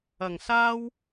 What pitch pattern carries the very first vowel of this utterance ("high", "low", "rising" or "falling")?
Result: low